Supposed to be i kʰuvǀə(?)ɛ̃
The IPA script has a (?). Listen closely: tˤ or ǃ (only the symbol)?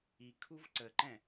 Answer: ǃ